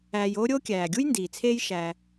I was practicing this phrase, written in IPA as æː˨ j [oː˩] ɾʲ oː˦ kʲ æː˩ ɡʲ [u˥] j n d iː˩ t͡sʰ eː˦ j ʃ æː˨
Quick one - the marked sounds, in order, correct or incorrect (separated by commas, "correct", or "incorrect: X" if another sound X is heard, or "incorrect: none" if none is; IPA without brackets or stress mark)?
incorrect: oː˦, correct